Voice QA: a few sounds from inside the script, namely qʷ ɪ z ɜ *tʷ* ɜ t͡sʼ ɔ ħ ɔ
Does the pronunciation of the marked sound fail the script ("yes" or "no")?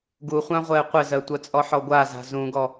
no